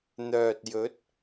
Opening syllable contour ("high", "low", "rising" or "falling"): low